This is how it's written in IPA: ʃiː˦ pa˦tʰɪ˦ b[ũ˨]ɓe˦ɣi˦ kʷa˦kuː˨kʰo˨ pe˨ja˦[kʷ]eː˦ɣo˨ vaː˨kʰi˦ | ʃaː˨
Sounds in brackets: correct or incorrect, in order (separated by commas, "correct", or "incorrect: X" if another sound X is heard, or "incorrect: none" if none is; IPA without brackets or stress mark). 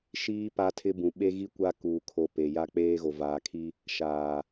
correct, incorrect: k͡p